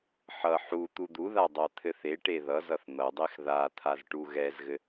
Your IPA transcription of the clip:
ħʌ ħu t̪ud̪uða dˤat̪ʰɘθeʈe ðʌzʌθ n̪ʌdˤex ðat̪ʰaz ʈuɣɛzɣɘ

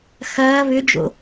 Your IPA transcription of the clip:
xɐː βʏd͡ʒo̰

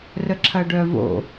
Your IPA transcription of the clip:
rəǁʰɐɖœvo̰

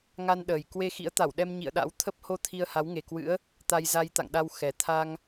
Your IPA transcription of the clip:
ŋa˧nɗəː˨˩j kwe˧ xḭ˧˥ə̯t̪a˧˩w ɗɛ˧m ɲḭ˧˨ə̯ɗa̰˧˥w t̪ʰə˦˥p̚ho˧ t̪ʰi˧ə̯ha˨˦wŋe˨˩kwɨ̰˧˥ə̯ | t̪a˧jza˧jt̪a̰˧˨ŋɗa˧w xɛ˨˩ t̪ʰa˧ŋ

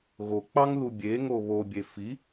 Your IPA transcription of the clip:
ɣok͡pɑŋðu bʲeŋo βobʲe fi

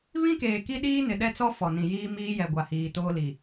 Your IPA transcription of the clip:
βĩ˦keː˨ ki˦ɗiː˦ nɪ˨ ɗɛ˦t͡sɔ˦ fɔ˨nĩ˨jiː˦ miː˦jɛ˨ ɡʷa˨hiː˨toː˦li˨

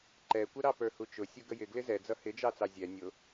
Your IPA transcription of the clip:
ǃɛkʷə ɾɑpə˞hut͡ʃʊ sʲʊɡəjɪ ɡlɪzɛ d͡zʌhɪd͡ʒɑt͡sɑ zʲɛ nʲʊ

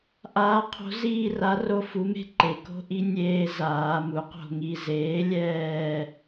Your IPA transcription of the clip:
ʔaː˨˥qʰo̤˨˥ziː˦˨ra˨˥ ro˦fu˨˥me̤˦ ǃe˩ko̤˦ʔi˦ nʲeː˦zaː˩˧ mu˩˧qo̤˦˨ŋi˦˨ zeː˨˥lʲɛː˦˨

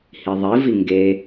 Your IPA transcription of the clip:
hiðˤivi ŋɡe

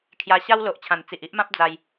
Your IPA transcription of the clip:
kʰja˧ɕa˦w lo˨ʔt͡ɕʰã˨˩n t͡si˨ʔ i˦ʔmã˦p̚ d͡za˧j

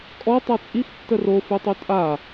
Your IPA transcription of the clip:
kʼɔ tˤat͡sʼix tːəro fʉtˤʉtʼa

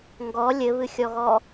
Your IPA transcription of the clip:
ŋɡɔ lʲɘβɨxʲɔɣɔ

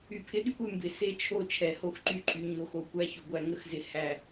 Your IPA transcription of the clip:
y˨pʰɪ˦ɗy˦kʷ y˨mbɪ˨ se˦t͡ʃʰo˦˨ t͡ʃʰɛ˨ ho˦xǃy˦ ǃʼy˨ɲo˨ xo˦ kʷæ˦ço˨ɡʷæ˦ ŋə˦xzɪ˨ hæ˨

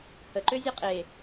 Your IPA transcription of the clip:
həǃøzʲə qʼe

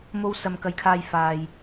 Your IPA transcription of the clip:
mo˧w sɐ˧mkɐ˧jkʰaː˧jfaː˨j

